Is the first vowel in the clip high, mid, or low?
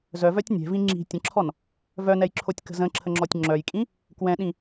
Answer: mid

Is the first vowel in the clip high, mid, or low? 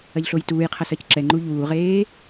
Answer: low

